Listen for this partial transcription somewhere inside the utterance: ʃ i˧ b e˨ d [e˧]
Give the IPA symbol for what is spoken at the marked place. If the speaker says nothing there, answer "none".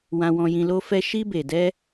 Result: ɛ˧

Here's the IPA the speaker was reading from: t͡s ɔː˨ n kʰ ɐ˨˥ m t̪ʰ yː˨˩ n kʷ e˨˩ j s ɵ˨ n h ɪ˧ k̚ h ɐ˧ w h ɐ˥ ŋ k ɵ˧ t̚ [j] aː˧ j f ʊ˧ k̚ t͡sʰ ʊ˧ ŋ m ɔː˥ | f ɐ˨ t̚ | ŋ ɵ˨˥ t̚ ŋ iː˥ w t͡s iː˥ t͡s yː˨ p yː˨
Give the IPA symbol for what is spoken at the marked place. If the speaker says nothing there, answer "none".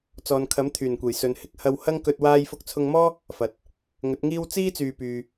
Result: w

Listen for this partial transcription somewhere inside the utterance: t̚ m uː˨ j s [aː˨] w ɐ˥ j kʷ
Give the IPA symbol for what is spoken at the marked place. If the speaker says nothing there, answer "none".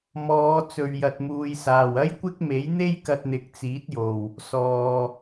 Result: aː˨˩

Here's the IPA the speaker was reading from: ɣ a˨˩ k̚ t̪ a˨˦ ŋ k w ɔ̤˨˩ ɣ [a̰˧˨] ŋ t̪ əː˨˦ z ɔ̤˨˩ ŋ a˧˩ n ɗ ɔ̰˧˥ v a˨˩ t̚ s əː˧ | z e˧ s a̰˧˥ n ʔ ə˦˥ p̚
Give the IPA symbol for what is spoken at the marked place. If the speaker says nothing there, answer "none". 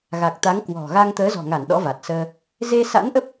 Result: a˧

